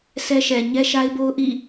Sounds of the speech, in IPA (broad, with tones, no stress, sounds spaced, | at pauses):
s ɛ˦ ʃ ɛ˨ ɲ ɛ˦ ʃ a˦ ɪ̯ b o˦ ʊ̯ ʔ ḭ˦˨